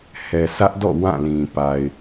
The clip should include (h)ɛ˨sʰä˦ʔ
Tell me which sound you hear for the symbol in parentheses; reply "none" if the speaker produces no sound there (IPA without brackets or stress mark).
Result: h